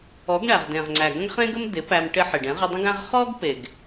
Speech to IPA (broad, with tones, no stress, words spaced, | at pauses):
ɔ˨˦ɡɳæ˨ʁdẽ˨ʁŋ͡ǀæ˨ ɡə̃˦ɡχẽ˦ɡə˦m dɪ˨˦pæ˧m ʈɪ˧ ħɪ˨ɖẽ˨˦ ʁə˧dˤə̃˦ɡæ̃˦ʁ χɔ˦ɡpe˨ɡ